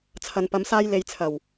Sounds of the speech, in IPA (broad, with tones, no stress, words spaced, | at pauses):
t͡sʰɐ˨npɐ˨˧m saː˥jle˧j t͡sʰɐ˨˩w